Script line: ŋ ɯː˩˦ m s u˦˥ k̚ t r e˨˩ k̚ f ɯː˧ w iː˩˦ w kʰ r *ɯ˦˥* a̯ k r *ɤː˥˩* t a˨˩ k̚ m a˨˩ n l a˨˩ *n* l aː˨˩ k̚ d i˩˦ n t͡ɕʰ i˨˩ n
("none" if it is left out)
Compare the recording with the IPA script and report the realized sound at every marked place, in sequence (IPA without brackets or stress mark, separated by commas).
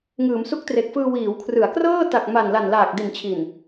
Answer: ɯ˩˦, ɤː˥˩, n